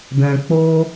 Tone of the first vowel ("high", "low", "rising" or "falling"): low